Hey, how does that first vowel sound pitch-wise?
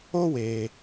high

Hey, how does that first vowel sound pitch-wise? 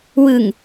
low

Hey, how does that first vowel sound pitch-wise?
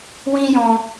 high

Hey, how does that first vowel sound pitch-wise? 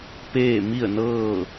falling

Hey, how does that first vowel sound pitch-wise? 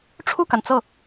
falling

